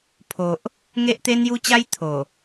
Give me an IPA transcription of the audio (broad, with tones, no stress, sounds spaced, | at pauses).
pʰ o˨ ʔ | ŋ e˦ ʔ t̪ e˦ n j u˦ t͡ɕ a˦ j t̪ʰ o˨˩